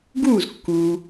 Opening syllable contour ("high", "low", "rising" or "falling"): falling